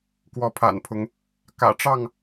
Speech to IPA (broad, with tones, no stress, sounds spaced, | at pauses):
k w ɔ˨˦ pʰ a̰˨˩ n pʰ ʊ˨˦ ŋ | k ä̰˨˩ ʈ͡ʂ ɑ˥˨ ŋ